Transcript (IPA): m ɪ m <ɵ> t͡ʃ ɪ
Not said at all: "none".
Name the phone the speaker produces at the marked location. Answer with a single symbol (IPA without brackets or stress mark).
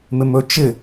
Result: ɵ